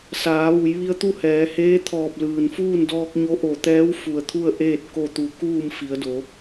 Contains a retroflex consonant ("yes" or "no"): no